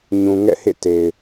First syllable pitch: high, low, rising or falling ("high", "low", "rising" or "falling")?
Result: low